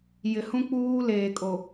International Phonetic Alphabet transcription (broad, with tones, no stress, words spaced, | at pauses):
jɪ˨ hũ˦k͡puː˦ leː˨kʼo˨